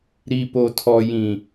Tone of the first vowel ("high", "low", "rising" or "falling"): low